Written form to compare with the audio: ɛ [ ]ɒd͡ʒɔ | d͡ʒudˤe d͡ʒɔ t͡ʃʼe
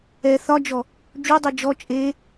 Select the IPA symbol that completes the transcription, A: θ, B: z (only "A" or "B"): A